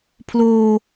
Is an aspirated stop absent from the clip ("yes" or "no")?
no